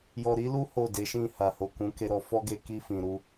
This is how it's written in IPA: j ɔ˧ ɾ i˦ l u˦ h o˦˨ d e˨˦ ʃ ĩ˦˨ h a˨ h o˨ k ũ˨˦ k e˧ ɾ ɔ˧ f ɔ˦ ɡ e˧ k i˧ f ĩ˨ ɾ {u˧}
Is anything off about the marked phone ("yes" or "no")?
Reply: no